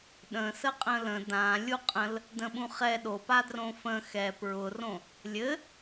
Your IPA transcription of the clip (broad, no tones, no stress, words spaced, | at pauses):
ɗə̃sə qʼə̃lə̃ dã lʲuqʼə̃l | də̃ɓũχɛ ɗopadrõ fə̃ xɛ pɹʊrõ | lʲɘ